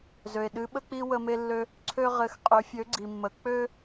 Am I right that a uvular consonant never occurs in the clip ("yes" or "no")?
no